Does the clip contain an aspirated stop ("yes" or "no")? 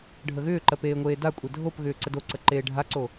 no